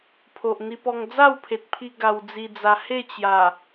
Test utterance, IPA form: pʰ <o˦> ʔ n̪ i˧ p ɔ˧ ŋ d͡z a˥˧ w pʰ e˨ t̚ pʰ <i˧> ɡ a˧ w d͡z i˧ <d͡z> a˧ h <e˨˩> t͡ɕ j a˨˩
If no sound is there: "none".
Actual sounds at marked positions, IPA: o˨, i˧, d͡z, e˥˧

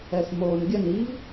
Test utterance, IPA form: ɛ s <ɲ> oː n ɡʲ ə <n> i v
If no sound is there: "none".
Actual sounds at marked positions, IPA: m, n

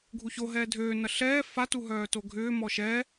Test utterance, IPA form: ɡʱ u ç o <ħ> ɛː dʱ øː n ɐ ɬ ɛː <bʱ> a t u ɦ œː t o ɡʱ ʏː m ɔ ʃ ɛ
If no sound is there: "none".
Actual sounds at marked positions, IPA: ɦ, f

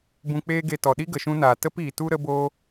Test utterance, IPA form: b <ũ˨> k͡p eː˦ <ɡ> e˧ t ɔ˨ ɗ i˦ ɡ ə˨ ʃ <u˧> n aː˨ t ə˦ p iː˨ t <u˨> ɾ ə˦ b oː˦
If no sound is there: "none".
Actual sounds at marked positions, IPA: ũ˧, ɡ, ũ˧, u˦

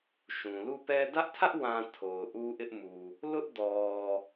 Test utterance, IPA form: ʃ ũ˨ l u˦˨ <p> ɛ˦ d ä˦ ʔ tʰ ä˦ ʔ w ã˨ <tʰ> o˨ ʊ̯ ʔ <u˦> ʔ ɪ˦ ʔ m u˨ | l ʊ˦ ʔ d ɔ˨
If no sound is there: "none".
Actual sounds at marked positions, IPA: p, tʰ, u˦

